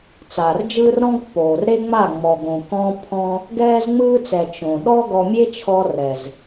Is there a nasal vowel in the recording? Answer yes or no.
yes